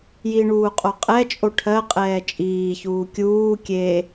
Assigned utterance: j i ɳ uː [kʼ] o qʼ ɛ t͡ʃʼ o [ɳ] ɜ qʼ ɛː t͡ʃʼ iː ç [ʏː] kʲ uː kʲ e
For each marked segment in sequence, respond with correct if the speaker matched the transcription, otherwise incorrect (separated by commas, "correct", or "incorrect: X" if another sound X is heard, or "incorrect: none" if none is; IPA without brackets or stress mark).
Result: incorrect: qʼ, incorrect: ʈʰ, incorrect: uː